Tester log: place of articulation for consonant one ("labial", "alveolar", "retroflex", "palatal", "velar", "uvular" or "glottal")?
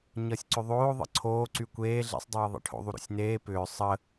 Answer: palatal